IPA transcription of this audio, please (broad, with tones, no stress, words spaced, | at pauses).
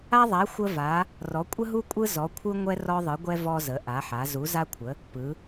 a˥ðˤa˧˥ xʷə˥va˧˥ | rɔ˧˥ kʷʼə˥ɦu˥kʷʼɯ˥ zɔ˧˥kʷʰɯ˥ ŋʷɛ˥rɔ˥ðˤɯ˧˥ɡʷɛ˥ vɔ˥zə˧˥ ʔa˧˥ħa˧˥ zu˧˥za˥kʷʰə˧˥ | pɯ˧˥